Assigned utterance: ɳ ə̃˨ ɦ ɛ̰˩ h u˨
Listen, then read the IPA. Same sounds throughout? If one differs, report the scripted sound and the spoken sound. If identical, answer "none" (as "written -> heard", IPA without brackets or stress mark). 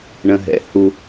none